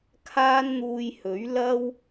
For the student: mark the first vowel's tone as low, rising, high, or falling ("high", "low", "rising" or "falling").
high